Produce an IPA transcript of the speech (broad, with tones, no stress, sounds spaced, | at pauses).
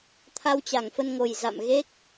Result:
t̪ʰ a˧ w t͡ɕ a˧˩ ŋ f ə˧ n ŋ o˨˩ j z a̰˧˨ m ɣ e˦˥ k̚